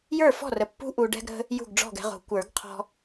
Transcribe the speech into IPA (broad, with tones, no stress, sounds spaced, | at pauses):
j ə˞˥˩ f ɔ̤˥˩ r ə˨ pː ṳ˦ ʔ u˨ ɖ ɛ̤˦ ɡ ɾ ə̤˦ | j ṳ˥˩ ɡ ɖ͡ʐ ɔ̤˥˩ ɡ ɛ̤˦ ʁ o̤˨˩˦ kʷ ə˞˨˩˦ ɡ qʰ ɔ̤˦